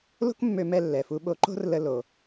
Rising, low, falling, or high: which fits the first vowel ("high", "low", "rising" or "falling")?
high